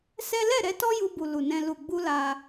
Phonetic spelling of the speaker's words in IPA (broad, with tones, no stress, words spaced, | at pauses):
sɛ˦ lɛ˦˨ɾɛ˧ tɔ˦ju˧bu˨ lu˨nɛ̃˧ lu˨ɡ͡bu˧ la˦